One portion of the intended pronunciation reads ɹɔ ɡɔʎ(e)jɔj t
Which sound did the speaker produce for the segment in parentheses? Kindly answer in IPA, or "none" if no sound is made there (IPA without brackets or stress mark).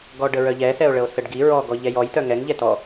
ɛ